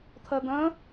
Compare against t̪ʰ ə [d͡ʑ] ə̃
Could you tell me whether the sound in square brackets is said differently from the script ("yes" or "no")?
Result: yes